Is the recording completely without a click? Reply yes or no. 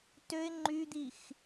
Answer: no